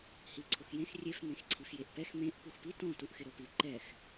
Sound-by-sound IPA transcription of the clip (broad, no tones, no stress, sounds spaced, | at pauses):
h i ǀʰ ʊ x j ẽ x rʲ e f m ẽ x ǀʰ i f j e ʔ p ɛ x m ẽ ʔ p u x p i t ɔ̃ t u ʔ x ɪ ɾ o p i ǃ ɛ x